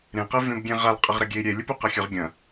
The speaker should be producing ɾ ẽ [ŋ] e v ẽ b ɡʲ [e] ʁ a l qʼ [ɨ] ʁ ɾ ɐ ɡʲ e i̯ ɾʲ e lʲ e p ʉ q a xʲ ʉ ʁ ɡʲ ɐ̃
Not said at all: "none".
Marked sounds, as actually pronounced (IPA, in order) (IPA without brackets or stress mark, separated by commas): q, ẽ, ɨ